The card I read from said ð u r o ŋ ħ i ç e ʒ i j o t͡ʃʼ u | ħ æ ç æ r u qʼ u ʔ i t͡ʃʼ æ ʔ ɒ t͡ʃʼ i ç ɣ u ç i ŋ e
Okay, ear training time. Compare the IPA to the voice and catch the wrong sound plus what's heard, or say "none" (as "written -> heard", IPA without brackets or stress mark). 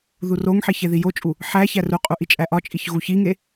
ʒ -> ð